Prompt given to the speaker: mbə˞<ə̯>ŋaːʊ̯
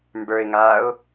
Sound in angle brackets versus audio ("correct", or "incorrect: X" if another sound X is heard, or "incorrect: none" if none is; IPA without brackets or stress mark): incorrect: ɪ̯